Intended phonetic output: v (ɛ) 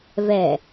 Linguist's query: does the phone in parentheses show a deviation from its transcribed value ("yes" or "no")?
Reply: no